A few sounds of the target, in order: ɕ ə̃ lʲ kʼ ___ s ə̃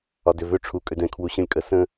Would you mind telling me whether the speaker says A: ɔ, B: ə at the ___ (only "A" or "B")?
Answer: B